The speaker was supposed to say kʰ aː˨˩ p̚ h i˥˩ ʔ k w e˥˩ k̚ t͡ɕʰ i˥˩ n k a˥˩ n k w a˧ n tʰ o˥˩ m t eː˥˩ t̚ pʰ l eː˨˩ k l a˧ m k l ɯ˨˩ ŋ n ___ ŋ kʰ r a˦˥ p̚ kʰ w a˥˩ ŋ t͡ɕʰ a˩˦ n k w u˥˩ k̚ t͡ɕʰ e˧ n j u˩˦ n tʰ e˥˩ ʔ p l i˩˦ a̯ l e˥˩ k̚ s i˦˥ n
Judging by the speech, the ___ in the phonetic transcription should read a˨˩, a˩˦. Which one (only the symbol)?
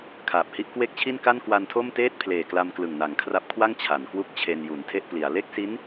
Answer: a˨˩